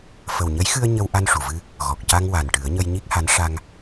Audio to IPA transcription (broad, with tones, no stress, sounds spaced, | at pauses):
f ə˨˩ w ɲ ə˧˥ j x ɨ˧ ə̯ ɲ ə˧ w ʔ a˧ n ʂ u˨˩˨ v ɨ˧ | ɣ ɔ˨˩ k̚ c a˧ ŋ w a˨˩ n ʈ ɨ˨˩˦ ə̯ ɲ ə˧ j ɲ i˦˥ k̚ h a˧˥ n ʂ a˧ ŋ